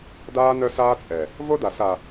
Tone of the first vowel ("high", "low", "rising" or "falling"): high